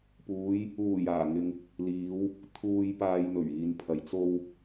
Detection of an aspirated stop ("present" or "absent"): present